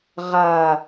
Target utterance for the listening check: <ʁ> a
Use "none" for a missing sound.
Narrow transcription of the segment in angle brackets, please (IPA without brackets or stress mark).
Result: ʁ